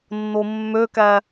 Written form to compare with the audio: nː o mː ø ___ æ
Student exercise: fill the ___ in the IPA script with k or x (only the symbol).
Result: k